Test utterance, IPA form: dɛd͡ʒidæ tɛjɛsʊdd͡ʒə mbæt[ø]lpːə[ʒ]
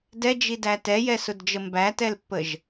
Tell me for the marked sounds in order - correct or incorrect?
incorrect: ɛ, correct

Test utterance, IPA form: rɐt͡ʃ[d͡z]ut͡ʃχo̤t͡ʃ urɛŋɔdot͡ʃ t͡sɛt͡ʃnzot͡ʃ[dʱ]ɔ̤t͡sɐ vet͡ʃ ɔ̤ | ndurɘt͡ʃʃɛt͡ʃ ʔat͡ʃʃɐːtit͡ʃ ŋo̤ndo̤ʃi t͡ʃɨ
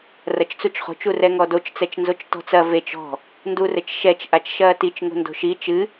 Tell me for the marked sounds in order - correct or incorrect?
incorrect: t͡s, incorrect: t

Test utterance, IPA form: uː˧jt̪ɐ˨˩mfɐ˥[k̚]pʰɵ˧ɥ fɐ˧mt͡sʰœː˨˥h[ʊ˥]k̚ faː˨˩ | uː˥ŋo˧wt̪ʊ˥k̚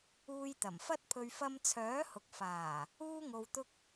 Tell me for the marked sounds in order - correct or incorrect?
incorrect: t̚, incorrect: ʊ˨

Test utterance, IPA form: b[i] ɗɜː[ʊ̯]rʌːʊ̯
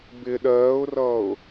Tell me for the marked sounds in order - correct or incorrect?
incorrect: ɪ, correct

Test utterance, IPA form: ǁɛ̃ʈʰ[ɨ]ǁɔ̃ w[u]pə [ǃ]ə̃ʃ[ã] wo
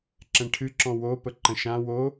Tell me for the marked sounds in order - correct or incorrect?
correct, incorrect: o, correct, correct

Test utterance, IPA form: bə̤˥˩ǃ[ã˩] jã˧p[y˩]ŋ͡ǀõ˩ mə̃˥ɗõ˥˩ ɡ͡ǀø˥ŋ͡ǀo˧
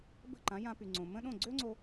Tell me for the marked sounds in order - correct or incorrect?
incorrect: ã˩˥, correct

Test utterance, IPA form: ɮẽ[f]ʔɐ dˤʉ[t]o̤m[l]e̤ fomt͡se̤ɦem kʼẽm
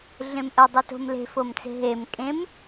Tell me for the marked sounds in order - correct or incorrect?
incorrect: m, correct, correct

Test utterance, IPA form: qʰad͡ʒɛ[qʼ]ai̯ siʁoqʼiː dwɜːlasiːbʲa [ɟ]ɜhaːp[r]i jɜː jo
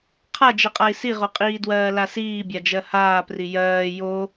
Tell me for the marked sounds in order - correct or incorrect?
correct, incorrect: d͡ʒ, correct

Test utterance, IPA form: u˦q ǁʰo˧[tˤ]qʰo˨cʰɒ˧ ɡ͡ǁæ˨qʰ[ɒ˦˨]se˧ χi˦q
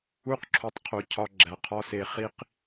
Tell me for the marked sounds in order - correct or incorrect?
correct, incorrect: ɒ˦

